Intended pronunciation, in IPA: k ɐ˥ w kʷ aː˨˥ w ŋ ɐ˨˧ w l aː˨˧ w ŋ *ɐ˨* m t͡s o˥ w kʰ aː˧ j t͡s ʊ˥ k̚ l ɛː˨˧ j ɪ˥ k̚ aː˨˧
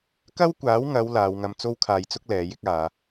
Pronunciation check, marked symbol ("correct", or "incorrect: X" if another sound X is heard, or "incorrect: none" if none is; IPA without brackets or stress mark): incorrect: ɐ˧